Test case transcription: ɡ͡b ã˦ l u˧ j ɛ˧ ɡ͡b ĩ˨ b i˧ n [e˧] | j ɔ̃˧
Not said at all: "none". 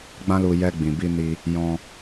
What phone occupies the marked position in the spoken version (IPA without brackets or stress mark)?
i˧